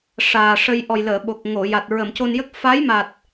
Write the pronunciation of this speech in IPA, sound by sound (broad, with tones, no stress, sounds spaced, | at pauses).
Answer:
ʂ aː˨˩ ʂ ə˧ j ʔ ɔ˨˩ j l əː˨˩˨ ɓ o˨˩ k̚ ŋ o˨˩˨ j a˨˩ t̚ ɹ ə˨˩˨ m c o˧ n j ə˦˥ k̚ f a˧˥ j m a˨˩ t̚